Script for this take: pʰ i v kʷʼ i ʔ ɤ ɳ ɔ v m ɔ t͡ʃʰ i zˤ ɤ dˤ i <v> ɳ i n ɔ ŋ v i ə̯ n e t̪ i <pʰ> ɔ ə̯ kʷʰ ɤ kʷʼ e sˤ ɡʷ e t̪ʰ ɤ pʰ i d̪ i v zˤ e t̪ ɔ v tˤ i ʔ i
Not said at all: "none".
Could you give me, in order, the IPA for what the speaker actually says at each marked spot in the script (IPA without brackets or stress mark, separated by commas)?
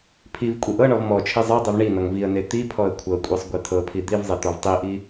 v, pʰ